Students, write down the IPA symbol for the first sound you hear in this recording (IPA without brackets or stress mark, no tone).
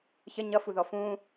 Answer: ç